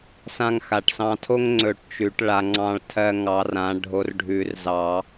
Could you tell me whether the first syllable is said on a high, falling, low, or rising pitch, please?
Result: high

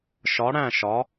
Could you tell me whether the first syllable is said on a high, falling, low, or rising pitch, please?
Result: rising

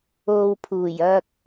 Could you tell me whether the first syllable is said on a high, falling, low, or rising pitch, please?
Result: low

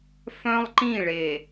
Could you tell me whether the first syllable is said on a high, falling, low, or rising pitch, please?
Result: high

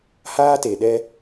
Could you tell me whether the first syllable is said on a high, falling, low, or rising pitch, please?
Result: high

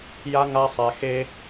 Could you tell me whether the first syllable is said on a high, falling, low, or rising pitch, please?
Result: high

